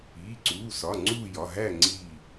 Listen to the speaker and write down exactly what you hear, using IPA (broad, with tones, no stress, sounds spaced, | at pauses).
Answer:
iː˩˧˩ ǀ uː˩˧˩ s ɒ˩˧˩ ŋ͡ǀ uː˦˨ j ɒ˩˧˩ ɦ æ˦˨ ŋ͡ǀ iː˦˨